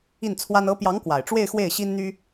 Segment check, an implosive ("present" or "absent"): absent